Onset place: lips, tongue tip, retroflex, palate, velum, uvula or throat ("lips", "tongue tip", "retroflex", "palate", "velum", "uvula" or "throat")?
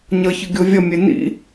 palate